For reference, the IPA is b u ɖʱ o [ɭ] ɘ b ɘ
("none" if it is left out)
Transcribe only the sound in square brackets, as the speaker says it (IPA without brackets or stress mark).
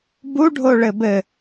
ɭ